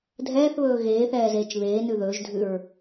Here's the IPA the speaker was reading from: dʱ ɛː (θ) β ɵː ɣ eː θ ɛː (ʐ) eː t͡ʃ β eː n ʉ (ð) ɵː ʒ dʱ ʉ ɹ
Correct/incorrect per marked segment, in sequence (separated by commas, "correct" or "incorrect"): correct, incorrect, correct